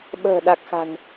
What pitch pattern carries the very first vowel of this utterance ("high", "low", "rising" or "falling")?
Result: low